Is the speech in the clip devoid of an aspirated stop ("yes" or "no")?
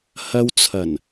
no